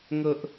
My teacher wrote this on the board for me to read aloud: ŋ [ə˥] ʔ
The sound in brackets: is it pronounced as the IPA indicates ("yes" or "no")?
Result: yes